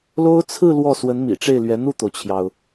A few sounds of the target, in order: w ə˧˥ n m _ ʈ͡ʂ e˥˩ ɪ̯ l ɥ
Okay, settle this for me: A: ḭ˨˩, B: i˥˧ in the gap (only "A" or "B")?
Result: A